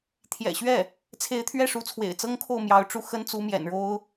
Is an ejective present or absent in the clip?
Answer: absent